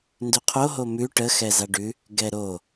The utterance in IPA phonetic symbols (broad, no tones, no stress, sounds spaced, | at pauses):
n d ʉ qʰ o ɦ o m ʉ ʈ ə x ɛ z a ɖ ʉ | ɡ ɛ ɾ o